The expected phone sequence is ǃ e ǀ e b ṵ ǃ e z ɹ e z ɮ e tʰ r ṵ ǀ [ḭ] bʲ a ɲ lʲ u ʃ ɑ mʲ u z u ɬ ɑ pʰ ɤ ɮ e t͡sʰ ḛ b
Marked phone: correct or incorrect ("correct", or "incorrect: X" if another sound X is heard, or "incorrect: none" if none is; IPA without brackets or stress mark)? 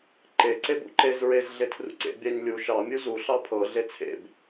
incorrect: ḛ